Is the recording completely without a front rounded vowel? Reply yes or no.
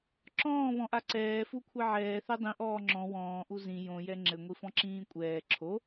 yes